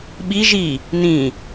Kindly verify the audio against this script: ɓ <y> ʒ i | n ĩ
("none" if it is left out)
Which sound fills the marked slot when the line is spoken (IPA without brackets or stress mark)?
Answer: i